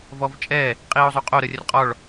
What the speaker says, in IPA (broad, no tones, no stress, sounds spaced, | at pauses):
v ɔ v t͡ʃʼ ɛ | qʼ iː ʊ̯ zˤ o qʼ o ɾ ə rʲ ə r qʼ ɔ ɭ